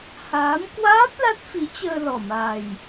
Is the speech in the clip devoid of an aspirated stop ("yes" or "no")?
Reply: yes